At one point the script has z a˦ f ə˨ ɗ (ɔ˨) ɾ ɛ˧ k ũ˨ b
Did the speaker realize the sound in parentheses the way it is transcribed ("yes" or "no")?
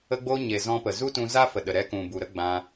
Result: no